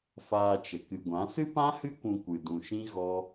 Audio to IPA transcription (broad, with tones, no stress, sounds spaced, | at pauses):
f aː˧ t͡ʃ ə˨ k ɨ˨ ɡʷ ã˨˦ s ɨ˦ p ã˦ h ɨ˦ kʷ ũ˧ kʷ ɨ˨ d ũ˨ ʃ ĩ˦ ɣ ɔ˦